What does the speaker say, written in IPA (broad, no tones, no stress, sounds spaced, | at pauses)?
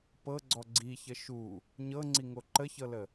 p ɤ ɡ͡ǀ ɔ ɡ͡ǀ i ç ə ʃ u | ɲ ɤ ŋ͡ǀ i ŋ o ǃ ə ç ɤ l ə